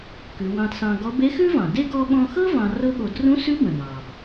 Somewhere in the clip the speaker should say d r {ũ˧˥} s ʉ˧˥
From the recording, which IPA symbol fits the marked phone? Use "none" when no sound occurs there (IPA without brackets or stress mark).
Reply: ũ˧˥